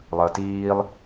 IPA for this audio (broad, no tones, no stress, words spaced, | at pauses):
lˠəːtiːlˠ